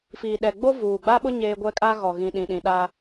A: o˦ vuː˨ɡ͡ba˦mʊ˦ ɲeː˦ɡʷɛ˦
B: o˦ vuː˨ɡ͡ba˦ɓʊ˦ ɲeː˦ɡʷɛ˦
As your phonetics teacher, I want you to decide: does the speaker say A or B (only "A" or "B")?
B